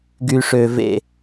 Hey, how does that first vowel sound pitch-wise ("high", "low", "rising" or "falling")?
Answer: low